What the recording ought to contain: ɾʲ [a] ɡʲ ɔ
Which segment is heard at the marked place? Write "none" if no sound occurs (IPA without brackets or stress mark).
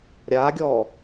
a